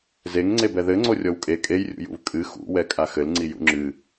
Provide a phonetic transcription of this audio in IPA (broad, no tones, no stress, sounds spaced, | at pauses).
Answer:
z e ŋ ŋ͡ǀ e b ɛ ð ɘ ŋ͡ǀ o rʲ ɔ w kʼ e kʼ e j rʲ ṵ j ṵ v kʼ ɨ x ṵ w ɛ kʼ a x ɘ l ŋ͡ǀ i j ṵ ŋ͡ǁ ɨ